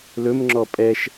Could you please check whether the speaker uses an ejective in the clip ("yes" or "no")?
yes